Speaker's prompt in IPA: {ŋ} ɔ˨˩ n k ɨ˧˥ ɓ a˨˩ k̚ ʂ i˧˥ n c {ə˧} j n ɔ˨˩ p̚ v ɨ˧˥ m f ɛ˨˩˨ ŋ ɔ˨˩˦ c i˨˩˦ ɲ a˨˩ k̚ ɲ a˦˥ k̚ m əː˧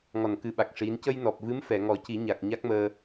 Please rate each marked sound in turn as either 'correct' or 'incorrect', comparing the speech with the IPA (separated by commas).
correct, correct